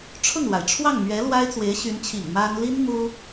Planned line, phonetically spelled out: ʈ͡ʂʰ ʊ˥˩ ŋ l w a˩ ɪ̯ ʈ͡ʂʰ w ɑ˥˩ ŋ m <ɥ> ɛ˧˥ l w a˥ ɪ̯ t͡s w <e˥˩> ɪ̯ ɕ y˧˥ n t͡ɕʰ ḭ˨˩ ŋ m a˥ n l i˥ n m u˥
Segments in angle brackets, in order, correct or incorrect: correct, incorrect

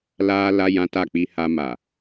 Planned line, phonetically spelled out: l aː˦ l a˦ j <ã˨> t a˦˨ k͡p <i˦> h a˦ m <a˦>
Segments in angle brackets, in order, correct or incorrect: incorrect, correct, incorrect

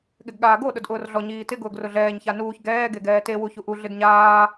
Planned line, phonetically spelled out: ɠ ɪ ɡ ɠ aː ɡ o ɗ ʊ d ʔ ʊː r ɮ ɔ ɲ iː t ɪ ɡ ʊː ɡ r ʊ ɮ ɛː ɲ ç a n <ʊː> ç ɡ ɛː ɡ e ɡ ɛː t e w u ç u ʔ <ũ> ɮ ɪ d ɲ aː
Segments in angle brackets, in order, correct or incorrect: incorrect, incorrect

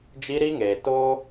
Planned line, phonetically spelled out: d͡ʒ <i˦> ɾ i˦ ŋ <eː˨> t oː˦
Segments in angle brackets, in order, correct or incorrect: correct, correct

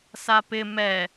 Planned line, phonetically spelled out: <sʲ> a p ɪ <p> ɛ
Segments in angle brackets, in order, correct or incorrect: incorrect, incorrect

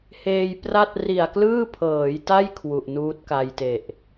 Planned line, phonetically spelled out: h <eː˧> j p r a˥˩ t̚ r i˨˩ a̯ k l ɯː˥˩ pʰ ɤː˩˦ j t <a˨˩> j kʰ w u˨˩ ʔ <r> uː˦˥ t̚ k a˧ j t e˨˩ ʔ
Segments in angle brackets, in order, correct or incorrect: correct, incorrect, incorrect

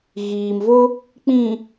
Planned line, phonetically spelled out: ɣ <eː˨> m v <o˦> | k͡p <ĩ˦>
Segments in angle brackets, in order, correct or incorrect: incorrect, correct, incorrect

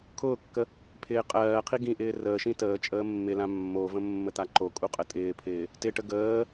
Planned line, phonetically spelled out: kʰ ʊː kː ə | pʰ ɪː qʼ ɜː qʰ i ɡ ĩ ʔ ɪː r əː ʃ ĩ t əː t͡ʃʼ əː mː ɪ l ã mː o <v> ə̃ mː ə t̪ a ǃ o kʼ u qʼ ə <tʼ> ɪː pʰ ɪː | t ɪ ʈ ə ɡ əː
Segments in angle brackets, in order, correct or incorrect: correct, correct

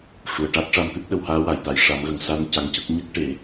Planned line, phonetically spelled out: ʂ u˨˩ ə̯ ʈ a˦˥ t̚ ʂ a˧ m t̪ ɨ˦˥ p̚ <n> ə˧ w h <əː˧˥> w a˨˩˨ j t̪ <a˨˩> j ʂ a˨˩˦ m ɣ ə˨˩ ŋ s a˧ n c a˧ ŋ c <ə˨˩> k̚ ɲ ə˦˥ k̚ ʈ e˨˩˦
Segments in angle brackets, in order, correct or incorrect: incorrect, incorrect, correct, incorrect

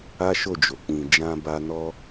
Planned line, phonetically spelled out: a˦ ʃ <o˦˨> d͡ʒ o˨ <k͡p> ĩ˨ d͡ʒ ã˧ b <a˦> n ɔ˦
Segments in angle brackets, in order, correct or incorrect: correct, correct, incorrect

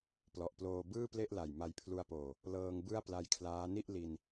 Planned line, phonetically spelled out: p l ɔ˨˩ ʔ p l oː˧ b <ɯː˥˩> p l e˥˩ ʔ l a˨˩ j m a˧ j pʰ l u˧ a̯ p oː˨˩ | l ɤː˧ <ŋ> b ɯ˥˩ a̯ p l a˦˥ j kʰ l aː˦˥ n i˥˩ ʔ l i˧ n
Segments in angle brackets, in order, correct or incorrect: correct, correct

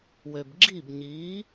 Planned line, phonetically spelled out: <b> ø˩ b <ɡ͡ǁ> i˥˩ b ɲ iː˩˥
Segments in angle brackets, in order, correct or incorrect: incorrect, correct

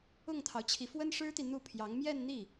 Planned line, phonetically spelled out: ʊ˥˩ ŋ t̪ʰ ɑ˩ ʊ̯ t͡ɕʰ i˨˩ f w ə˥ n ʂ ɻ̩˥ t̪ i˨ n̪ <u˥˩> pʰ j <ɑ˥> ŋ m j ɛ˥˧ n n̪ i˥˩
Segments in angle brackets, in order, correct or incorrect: correct, incorrect

